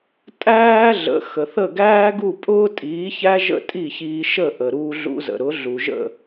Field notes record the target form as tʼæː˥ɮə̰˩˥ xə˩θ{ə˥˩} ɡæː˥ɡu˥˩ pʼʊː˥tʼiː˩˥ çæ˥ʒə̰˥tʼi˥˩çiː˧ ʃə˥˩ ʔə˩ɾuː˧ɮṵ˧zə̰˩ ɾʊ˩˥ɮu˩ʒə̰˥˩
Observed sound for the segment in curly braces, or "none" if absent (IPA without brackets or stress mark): ə˥˩